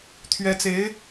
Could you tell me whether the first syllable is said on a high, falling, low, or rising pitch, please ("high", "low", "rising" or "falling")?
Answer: rising